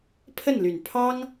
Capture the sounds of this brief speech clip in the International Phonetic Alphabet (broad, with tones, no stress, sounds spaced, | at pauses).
pʰ ə˥˩ n l y˨˩ n pʰ ɑ˥ ŋ